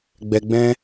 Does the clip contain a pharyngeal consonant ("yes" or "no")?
no